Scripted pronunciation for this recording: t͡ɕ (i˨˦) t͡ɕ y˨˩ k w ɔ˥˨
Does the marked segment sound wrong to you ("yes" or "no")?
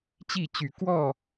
yes